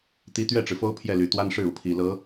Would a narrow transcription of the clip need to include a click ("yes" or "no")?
no